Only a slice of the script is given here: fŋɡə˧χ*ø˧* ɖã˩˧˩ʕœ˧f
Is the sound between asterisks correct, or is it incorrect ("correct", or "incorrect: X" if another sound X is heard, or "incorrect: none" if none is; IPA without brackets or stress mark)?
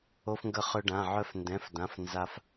correct